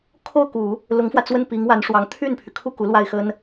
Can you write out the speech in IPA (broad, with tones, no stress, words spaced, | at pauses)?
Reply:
kʰo˥˩ʊ̯ku˨˩˦ | lʊ˧˥ŋfwä˧t͡swə˥˩n pi˧˥ŋwa˧˥nʂwɑ˧˥ŋ t̪ʰy˥˩npʰy˩kʰu˥˩ ku˧˥lwa˥˩ɪ̯ xə˥n